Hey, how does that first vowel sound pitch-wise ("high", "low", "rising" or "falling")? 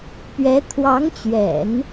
rising